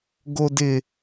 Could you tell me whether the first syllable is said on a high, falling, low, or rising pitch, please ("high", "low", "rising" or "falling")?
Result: high